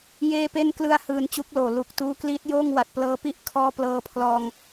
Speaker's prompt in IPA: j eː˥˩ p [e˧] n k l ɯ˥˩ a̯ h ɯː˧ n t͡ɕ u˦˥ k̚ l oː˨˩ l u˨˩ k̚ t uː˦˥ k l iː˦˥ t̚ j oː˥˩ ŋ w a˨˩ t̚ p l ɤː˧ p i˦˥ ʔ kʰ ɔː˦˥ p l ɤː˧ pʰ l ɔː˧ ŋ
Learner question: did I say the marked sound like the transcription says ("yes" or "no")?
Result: no